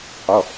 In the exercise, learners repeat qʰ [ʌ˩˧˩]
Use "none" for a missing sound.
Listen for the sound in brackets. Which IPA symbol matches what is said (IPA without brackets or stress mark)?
ʌ˩˧˩